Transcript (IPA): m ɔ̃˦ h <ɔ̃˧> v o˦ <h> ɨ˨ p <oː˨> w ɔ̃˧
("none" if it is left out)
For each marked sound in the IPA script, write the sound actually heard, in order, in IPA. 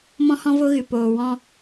ɔ̃˦, ɣ, oː˨

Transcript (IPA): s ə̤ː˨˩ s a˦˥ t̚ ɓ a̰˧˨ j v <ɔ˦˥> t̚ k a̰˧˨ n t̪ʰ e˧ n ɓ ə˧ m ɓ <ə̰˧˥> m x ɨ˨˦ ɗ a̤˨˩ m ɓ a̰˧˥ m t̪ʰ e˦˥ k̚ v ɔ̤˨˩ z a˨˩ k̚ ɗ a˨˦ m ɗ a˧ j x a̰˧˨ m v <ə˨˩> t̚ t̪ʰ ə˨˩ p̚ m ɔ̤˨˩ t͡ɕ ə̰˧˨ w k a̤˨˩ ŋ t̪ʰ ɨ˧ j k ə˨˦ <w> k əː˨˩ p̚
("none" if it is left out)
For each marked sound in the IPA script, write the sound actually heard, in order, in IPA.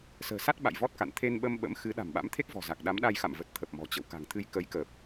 ɔ˦˥, ə̰˧˥, ə˨˩, j

